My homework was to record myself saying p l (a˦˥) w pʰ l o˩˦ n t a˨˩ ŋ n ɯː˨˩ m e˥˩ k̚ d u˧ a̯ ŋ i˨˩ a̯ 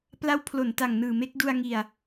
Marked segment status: correct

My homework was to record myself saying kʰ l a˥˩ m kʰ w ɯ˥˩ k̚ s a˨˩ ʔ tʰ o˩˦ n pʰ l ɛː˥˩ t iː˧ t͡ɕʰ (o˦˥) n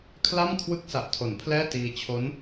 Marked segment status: correct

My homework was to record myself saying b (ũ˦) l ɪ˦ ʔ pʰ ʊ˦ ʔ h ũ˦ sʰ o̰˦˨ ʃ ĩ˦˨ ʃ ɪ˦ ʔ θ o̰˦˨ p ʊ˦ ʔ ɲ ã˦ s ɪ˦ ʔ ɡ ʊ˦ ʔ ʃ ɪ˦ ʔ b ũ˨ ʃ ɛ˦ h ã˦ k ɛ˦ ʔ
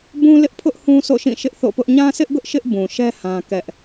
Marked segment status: correct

